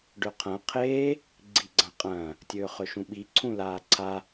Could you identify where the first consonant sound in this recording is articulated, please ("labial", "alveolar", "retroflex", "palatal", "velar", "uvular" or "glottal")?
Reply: retroflex